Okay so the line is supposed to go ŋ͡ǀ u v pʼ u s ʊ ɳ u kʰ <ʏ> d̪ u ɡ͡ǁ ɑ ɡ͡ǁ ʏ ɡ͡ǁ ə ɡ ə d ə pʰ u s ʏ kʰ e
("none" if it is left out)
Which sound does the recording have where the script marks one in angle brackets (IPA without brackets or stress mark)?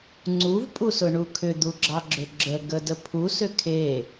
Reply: ʏ